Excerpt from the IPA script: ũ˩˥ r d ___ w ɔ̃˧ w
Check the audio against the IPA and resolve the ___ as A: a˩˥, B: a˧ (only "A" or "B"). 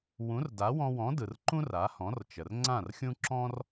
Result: A